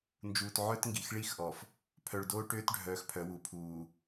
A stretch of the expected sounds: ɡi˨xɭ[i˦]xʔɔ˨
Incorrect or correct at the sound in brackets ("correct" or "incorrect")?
correct